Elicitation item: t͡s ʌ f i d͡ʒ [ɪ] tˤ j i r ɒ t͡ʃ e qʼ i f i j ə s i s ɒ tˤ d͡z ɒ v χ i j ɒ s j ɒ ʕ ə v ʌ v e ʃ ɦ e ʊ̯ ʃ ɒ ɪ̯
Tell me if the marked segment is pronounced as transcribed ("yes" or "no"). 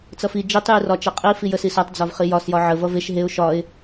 no